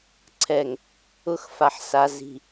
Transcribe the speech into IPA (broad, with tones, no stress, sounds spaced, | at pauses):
ǀʰ ɛ˨ ŋ | ʊ˦ x f a˨ ħ s a˨ z i̤˨